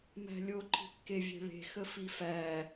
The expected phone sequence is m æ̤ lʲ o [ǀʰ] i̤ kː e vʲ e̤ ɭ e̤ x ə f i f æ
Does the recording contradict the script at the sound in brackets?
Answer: yes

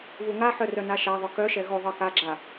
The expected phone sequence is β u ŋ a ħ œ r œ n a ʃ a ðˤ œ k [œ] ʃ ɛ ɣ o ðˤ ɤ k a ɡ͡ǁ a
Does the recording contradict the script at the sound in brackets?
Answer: no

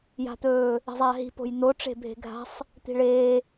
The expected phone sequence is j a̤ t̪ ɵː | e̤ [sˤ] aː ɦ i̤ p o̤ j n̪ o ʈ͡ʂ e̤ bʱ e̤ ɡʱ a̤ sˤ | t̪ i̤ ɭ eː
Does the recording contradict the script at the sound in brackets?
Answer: yes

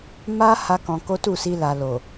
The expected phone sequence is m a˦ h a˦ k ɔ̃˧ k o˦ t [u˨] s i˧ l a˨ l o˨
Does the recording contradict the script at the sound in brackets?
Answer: yes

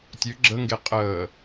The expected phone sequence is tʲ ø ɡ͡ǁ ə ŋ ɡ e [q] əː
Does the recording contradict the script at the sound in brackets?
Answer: yes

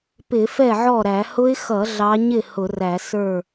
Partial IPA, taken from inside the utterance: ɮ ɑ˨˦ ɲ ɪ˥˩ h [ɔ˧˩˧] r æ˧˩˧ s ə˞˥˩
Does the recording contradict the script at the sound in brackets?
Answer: yes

